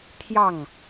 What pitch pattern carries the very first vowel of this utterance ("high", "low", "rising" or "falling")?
falling